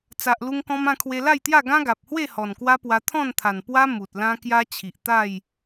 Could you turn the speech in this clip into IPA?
t͡sa˨ʔlu˧ŋkɔ̃˧mã˥˧ kʰwe˧la˥˧jt̪ja˥˧ ɡã˦ɡa˨p̚hwe˥˧ hɔ˨˩nkwa˦pwa˧ t̪ʰɔ̃˥˧nt̪ʰa˨˩n pwa˦ mu˨t̚lã˦kja˦ t͡ɕʰi˨ʔt̪a˥˧j

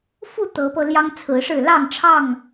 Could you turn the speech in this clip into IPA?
fu˥˨ t̪ɤ˨˦pɤ˧ ljɑ˦ŋt͡sʰɹ̩˨˦ʂɻ̩˥˨ lɑ˥˨ŋʈ͡ʂʰɑ˥˨ŋ

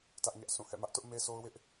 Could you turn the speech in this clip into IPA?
tä˦ʔɲä˦ʔ sʰũ˦˨hɛ̰˦˨mä˦ʔtʊ˦ʔ me˦so˦ʊ̯wɪ˦ʔ

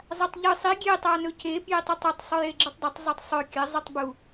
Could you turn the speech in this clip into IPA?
zˤatˤʎɨ sˤi ɡʲe tˤanɵce pjitˤʉtˤɵtˤ sˤʉjeɡ͡ǁɨtˤdˤɵtˤ zˤotˤsˤɵ kʲɐ zˤutˤbu

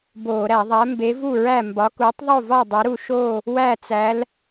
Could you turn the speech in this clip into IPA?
boː˧˩˧ ɾæ˧˩˧ðˤæ˨˥ mbe˨˥vu˥˨ ɹæ˥˨ mbɒ˨˥kuː˨˥tˤ ðˤo˥˨vɒ˥˨ dˤe˨˥ɾu˥˨ ʃoː˥˨ | wæ˥˨t͡sæ˨˥l

